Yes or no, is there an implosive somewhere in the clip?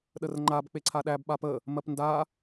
yes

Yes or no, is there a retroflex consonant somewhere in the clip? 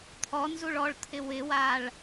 yes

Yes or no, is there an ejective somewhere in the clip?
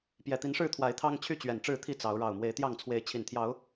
no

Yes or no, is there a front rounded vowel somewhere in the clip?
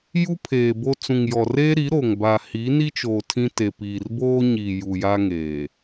no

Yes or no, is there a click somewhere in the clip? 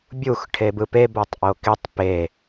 no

